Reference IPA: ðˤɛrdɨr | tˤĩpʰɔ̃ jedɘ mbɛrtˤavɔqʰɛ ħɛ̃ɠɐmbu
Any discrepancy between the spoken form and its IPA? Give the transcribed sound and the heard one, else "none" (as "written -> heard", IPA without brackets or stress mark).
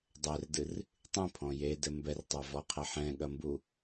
ðˤ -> dˤ